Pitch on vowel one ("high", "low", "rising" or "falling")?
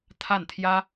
falling